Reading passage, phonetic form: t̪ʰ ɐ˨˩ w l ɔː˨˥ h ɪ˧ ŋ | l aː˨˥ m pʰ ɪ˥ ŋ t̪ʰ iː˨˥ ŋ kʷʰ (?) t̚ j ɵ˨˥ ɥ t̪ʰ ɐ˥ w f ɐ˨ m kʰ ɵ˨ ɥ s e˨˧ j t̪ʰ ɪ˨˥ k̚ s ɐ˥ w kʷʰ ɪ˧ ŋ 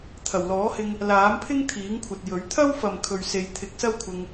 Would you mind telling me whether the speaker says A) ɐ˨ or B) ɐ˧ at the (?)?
A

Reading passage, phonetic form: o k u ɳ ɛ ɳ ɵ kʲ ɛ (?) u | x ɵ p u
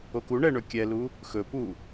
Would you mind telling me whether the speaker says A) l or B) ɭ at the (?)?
A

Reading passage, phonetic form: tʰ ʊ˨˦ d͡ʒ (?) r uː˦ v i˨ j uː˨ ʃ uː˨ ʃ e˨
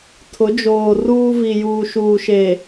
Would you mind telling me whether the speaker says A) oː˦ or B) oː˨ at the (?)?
B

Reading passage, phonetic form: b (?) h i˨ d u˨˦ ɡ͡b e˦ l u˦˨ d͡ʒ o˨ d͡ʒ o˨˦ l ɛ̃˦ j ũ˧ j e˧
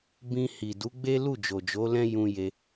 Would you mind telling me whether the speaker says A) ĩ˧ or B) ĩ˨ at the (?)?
A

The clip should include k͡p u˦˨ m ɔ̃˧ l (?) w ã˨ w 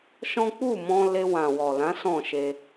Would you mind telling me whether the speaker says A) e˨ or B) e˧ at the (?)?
B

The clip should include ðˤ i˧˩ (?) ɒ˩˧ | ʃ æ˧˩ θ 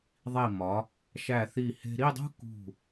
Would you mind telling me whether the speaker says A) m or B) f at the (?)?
A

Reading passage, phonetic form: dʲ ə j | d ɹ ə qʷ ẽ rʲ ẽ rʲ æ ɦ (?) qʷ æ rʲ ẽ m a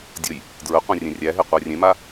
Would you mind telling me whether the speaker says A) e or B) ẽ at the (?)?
A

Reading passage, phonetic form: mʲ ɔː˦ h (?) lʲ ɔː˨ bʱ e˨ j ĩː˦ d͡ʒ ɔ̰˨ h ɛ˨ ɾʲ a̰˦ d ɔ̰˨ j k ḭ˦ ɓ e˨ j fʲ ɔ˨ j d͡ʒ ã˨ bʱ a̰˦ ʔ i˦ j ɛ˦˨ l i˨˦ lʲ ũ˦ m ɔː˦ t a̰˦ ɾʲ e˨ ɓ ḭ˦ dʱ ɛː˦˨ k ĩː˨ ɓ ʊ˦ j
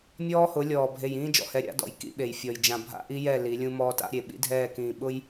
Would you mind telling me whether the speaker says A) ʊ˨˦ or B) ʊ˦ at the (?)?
A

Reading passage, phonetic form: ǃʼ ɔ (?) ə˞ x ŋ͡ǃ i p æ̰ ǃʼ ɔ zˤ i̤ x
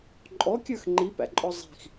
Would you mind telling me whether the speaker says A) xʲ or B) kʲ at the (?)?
B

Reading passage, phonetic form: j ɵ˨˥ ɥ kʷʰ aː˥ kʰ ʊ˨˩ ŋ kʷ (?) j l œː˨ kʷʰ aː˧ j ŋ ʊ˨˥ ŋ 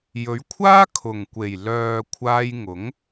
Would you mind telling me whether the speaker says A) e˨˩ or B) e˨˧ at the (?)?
A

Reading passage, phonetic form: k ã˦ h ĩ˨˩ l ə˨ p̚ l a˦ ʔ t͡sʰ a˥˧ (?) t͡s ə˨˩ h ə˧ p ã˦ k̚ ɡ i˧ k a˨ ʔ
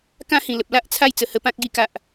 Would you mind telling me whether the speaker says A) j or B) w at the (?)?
A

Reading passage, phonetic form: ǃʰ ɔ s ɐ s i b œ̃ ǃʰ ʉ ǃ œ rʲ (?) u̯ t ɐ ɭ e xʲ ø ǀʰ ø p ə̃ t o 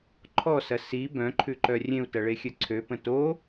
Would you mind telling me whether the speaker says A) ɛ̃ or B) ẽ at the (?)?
B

